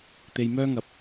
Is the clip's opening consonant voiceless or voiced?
voiceless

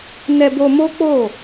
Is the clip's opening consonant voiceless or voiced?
voiced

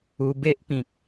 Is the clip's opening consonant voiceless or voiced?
voiced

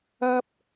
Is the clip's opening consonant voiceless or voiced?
voiceless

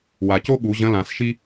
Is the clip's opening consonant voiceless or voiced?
voiced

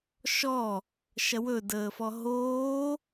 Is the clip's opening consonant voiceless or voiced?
voiceless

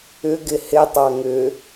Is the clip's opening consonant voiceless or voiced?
voiced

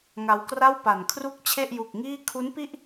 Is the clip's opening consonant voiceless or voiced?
voiced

